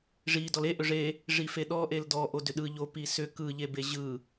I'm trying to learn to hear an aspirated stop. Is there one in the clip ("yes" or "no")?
no